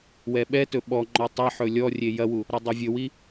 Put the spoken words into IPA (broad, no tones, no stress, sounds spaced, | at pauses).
w ɛ ɓ ɛ t ɵ ɓ ɔ ŋ͡ǃ ɔ tˤ ɛ ħ ɵ lʲ ɔ rʲ e j ɐ w u | ɾ ɔ dˤ ɑ vʲ ɵ w i